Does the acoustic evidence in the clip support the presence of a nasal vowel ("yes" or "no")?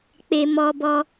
no